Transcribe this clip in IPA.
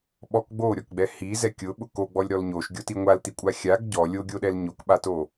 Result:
ɓɔk ɡ͡boɾʲɔkɡ͡bɛ hizɛ kʲʊɓʊ koɡ͡bɔlʲɾɔl ɲoʃɡʲoti ŋʷaltikʷʼa xʲaɡ ɟɔ lʲoɡʲoɗɛl ɲokɓato

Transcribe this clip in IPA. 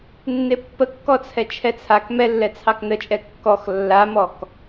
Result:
nːepːəkːɔt͡sʰɛ t͡ʃʰɛt͡sʰak mɛlːɛ t͡sʰɑknət͡ʃʼɛ kːɔx lːamɔk

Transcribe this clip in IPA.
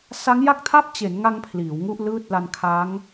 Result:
sa˦˥ŋja˥˩k̚tʰa˥˩p̚ t͡ɕe˩˦nŋa˧ŋ pʰliː˩˦wŋu˥˩ʔlɯː˥˩t̚ la˧nkʰa˦˥ŋ

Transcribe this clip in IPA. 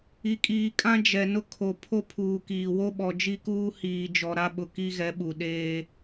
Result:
i˨kʼiː˨kʼã˦ d͡ʒɛ˨nʊ˦ kʰo˨ pʰo˦pʰuː˨kiː˨ wo˦ɓɔ˨d͡ʒi˦kuː˦ hiː˨d͡ʒɔ˨ɾa˦ɓʊ˨ ki˦ɣɛ˨˦ɓu˨ ɗeː˦

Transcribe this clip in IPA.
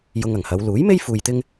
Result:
jʊ˧ŋɐ˨˩ŋhɐ˨˧w luː˨˥jme˥j fuː˧jt̪ɪ˥ŋ

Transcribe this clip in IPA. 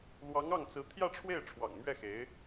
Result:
lwɑ˧˥ŋɑ˥˩ŋt͡sɹ̩˧˥ t̪ʰjä˥˧ʈ͡ʂʰwe˥˩ɪ̯ ʈ͡ʂʰwɑ̰˨˩ŋmɥɛ˥˩xe˧˥ɪ̯

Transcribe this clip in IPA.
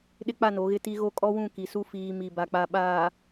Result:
ɗɪ˦k͡pa˦˨ no˨˦ɣɪ˦ti˦ ɣo˦kʼɔ˦wũ˦˨ ki˨su˦ fiː˨ mi˨ba˨ k͡pa˨ɓaː˨

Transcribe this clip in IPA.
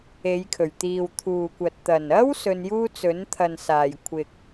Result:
e˨˧jkʰɵ˨˩ɥ t̪iː˨wt̪ʰuː˨kʷɐ˨t̚ t̪ɐ˨˩nɐ˥w sɵ˧njuː˥t͡sɵ˨˥nt̪ʰɐ˨n saː˨˩jkʷʰɪ˨k̚

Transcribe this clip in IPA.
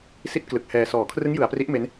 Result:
si˥˩t̚ klɯ˨˩k̚hɛː˧ sɔː˩˦kʰrɯ˦˥ŋ jɯ˩˦a̯pri˦˥ʔ me˦˥n

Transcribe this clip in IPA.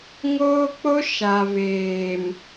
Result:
ŋoː˦k͡po˦ ʃa˨veː˨m

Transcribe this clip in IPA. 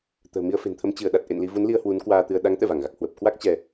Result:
t̪ə̤ː˨˩mi˧ə̯fe̤˨˩nt̪ʰə˧m t͡ɕɨ˧˩ə̯ ɗa˨˩t̚ ʔḛ˧˨n li˧vu˨˦nli˧ə̯ hwu˨˦nkwaː˧t̪ɨ˧ə̯ ɗa˨˦ŋt̪ɛ̰˧˨va˧˩ŋɣa˨˩k̚ hwə˨˩p̚ kwa˦˥k̚ t͡ɕɛ˧

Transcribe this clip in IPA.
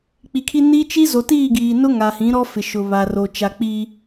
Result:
k͡pi˨kʰi˦ ni˦t͡ʃi˦ zo˨tiː˦˨ ɡiː˨nʊ˦ŋa˨hĩ˨˦ ɾɔ˦ fɪ˨ ʃʊ˨βa˨ro˨ t͡ʃa˨k͡pi˨

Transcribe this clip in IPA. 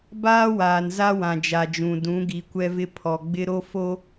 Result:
baː˦waː˨n za˦wã˨d͡ʒa˨d͡ʒũ˨ dũ˨˦ɡi˨kʷɛ˦vɪ˦ pʰɔ˨ɡ͡bɪ˦ɾo˦ fo˦

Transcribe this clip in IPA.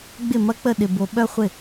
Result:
ɡ͡bɪ˥˩mɐ˥˧ k͡pə˥˩ɗɪ˨bo˨ɓœ˥˧ χʷɪ˥˩

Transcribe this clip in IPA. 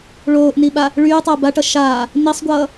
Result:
ɭoːʔniɓa | ɭyːtˤoː baʈʌ ʃaː | nisˤɡʷʌː

